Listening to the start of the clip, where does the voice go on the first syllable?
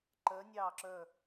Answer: rising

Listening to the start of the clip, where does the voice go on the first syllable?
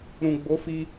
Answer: low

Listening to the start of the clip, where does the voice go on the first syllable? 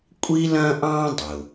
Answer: high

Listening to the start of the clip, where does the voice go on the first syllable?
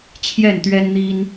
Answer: falling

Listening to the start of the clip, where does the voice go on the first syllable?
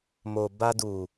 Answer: low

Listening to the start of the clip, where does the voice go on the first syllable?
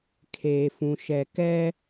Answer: low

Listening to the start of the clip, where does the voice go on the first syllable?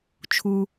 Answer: low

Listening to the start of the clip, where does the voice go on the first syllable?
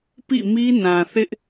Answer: falling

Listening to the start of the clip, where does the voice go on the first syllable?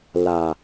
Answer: low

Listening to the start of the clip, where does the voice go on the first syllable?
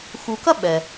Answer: low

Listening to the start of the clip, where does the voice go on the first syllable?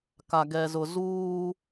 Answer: low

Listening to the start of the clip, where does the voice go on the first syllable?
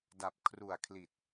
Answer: low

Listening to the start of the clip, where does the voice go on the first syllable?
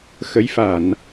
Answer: rising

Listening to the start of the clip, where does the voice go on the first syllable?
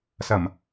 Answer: low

